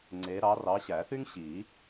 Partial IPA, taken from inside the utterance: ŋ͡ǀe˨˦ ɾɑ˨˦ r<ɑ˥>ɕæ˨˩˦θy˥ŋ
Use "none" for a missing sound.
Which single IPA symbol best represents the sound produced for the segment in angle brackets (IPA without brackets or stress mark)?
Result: ɑ˨˦